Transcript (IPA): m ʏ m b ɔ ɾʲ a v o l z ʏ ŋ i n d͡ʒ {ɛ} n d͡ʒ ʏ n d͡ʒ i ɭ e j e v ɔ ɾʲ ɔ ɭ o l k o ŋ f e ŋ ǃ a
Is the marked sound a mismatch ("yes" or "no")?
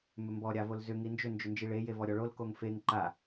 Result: yes